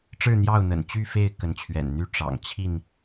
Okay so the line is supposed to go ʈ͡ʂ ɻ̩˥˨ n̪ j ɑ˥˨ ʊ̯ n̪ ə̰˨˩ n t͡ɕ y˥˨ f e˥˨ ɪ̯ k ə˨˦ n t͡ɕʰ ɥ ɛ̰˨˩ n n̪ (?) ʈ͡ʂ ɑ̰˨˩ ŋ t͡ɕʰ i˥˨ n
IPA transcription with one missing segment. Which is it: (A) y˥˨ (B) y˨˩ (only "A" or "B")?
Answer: A